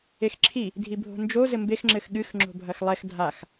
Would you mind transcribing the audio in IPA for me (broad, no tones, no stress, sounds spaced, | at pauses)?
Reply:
e x ǁʰ i | dʱ i bʱ o̤ n d͡ʒ o z ɘ m b e x ŋ͡ǁ ɘ x ɠ ɨ x ŋ͡ǁ o̤ bʱ ɐ x lˠ ɛ x dʱ a x